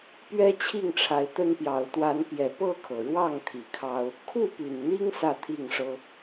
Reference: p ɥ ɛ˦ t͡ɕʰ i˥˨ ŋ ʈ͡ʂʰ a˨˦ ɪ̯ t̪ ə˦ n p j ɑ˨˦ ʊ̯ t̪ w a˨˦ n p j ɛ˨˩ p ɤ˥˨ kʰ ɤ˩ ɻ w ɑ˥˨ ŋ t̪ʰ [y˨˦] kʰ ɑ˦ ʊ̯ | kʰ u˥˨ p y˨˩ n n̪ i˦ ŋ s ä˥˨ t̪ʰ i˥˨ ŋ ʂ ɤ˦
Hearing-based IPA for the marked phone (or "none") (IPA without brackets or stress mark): i˨˦